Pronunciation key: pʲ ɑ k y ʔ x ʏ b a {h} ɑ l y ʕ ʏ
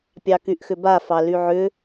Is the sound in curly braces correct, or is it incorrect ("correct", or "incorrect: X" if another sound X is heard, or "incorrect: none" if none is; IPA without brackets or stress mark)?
incorrect: f